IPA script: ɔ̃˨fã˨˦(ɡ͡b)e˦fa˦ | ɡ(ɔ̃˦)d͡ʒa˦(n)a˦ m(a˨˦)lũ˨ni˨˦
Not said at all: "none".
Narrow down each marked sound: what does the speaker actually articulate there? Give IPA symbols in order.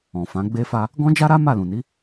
ɡ͡b, ɔ̃˦, ɾ, a˦˨

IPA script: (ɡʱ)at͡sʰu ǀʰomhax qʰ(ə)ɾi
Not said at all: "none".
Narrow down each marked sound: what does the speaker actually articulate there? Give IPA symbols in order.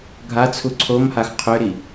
ɡʱ, ʏ

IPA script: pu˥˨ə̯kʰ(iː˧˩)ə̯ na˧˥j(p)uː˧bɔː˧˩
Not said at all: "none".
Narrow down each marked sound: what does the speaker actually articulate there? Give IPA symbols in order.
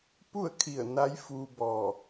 i˧˩, f

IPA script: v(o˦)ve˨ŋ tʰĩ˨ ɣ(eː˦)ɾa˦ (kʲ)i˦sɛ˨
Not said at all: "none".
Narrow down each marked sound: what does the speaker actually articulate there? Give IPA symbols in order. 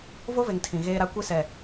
o˦, eː˦, kʷ

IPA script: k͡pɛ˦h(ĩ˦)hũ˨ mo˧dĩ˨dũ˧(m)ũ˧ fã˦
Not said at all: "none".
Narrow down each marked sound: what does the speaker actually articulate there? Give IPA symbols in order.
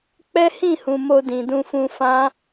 ĩ˦˨, f

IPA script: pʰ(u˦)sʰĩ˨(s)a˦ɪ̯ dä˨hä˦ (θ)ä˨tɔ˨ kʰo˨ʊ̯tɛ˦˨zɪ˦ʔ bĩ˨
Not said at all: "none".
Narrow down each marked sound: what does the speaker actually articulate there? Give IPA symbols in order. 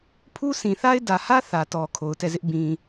u˦, θ, θ

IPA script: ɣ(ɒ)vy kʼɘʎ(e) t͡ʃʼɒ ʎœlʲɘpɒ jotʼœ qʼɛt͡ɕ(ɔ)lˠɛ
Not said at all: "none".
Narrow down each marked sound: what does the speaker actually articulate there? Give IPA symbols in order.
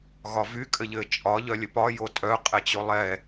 ɒ, ɘ, o

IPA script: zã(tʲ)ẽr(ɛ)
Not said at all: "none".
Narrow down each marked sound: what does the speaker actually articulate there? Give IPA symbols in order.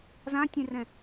tʲ, ɛ̃

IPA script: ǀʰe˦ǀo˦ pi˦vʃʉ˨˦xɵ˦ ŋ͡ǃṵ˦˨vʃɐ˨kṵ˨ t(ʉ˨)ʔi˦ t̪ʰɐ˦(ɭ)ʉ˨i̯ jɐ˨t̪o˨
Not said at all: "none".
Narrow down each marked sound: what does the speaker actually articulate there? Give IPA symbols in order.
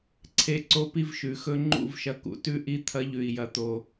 ʉ˦, ʎ

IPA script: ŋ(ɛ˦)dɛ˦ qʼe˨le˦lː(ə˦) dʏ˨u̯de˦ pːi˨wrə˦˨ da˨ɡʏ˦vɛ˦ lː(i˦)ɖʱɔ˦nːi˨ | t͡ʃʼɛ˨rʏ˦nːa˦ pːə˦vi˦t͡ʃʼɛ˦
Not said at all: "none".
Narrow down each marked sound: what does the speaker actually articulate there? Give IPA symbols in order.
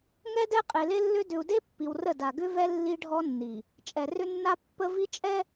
ɛ˦, ʏ˦, i˦

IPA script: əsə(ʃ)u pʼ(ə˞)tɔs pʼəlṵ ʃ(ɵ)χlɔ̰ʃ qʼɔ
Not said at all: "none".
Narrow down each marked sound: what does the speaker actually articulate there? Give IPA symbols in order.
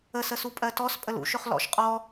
s, ɜ, ɵ

